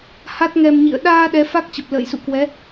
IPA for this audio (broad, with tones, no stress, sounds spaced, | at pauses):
h a˦˥ t̚ ŋ ɛ˧ m ɲ ḭ˧˨ ə̯ ɗ aː˧ ɗ ɛ˨˦ f a˦˥ k̚ t͡ɕ ə˨˩ p̚ l ə̰ː˧˨ j s ṵ˧˨ k w ɛ˨˦